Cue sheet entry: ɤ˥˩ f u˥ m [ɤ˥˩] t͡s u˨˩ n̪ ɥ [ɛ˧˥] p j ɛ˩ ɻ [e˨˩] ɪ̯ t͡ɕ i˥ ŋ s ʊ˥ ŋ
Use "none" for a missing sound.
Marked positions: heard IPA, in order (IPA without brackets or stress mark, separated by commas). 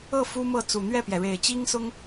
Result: ɤ˥˩, ɛ˥˩, e˨˩